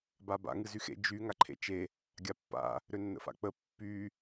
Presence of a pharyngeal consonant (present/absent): absent